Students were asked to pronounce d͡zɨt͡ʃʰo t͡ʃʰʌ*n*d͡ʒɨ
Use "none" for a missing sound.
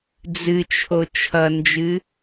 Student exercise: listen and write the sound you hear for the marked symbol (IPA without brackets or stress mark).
n